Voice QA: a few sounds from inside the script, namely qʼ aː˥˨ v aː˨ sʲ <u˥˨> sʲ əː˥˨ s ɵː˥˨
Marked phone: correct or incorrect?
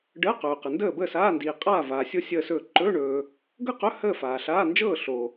incorrect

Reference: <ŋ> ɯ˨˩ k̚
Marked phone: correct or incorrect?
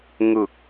correct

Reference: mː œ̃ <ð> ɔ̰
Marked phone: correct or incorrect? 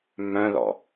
correct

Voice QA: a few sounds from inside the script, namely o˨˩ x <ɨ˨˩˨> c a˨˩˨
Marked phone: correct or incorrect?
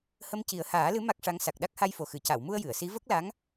correct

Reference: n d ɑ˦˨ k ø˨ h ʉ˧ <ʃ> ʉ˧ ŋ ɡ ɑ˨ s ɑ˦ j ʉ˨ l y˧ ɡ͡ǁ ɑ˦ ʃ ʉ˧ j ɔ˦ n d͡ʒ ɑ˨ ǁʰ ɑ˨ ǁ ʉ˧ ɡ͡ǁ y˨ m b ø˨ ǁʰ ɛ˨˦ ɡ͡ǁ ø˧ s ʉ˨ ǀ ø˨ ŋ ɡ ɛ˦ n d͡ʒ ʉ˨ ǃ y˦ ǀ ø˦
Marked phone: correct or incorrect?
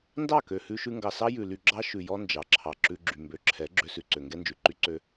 correct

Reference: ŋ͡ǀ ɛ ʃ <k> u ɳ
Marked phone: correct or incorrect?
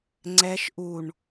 incorrect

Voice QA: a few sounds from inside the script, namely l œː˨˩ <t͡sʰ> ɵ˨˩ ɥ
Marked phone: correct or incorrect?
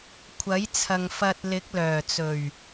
incorrect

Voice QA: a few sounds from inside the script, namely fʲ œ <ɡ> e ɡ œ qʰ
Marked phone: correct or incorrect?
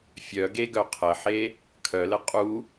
correct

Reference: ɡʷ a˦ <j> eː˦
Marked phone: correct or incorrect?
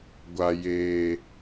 correct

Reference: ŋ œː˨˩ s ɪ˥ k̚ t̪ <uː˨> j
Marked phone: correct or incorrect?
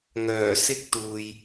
correct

